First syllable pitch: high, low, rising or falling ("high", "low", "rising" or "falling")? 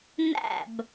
falling